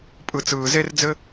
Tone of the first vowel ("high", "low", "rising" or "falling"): low